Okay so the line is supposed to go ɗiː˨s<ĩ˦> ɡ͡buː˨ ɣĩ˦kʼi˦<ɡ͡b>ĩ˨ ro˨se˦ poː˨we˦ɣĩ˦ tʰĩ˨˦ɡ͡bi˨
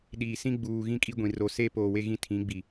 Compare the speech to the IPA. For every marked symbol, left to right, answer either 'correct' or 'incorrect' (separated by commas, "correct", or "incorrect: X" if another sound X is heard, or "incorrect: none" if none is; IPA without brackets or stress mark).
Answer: correct, incorrect: ɡʷ